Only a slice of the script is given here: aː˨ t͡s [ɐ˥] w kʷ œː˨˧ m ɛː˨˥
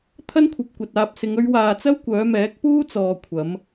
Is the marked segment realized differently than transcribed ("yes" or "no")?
no